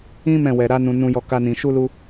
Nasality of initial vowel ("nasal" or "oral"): nasal